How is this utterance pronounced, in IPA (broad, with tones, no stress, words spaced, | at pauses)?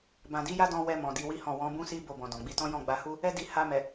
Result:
bã˨di˨˦ja˦dɔ̃˧ wɛ˧ mɔ̃˨di˧wi˦hɔ̃˦˨ wɔ̃˨˦bũ˦si˦ bo˦˨bɔ̃˨dɔ̃˨ɡ͡bi˧ tɔ̃˦jɔ̃˦˨ɡ͡ba˧hu˦ | ɛ˦di˧ ha˧mɛ˨